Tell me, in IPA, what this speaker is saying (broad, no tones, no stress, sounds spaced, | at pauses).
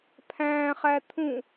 pʰ æ̃ χ æ t̪ʰ ũ